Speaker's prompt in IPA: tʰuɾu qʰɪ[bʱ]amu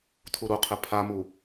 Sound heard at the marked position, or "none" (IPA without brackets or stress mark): pʰ